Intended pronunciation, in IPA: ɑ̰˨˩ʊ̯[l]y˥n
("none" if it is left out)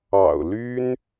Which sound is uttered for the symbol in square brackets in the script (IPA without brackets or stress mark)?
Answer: l